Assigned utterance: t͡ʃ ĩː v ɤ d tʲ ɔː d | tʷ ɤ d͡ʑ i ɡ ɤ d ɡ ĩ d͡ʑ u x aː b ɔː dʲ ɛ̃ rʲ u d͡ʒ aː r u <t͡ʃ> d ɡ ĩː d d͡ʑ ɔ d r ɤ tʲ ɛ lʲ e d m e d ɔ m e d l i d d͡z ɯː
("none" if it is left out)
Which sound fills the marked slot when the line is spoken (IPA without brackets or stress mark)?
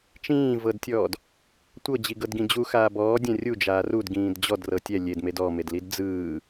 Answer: none